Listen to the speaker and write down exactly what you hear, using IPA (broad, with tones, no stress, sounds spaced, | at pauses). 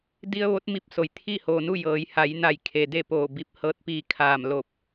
d i˧ ə̯ ʋ o˧˥ t̚ m i˧ p̚ s o˩ j t̪ʰ i˥˨ h oː˩ n u˥˨ j ɤː˩˧ j h a˩˧ j n a˧˩ j kʰ e˩ d e˥˨ p oː˧˩ b i˧˩ p̚ h ɤː˧ t̚ p iː˧ kʰ aː˧˩ m l o˧˩ p̚